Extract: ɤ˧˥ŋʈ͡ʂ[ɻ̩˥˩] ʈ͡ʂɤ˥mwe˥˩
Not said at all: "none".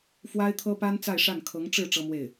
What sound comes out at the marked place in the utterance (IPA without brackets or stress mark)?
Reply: ɻ̩˥˩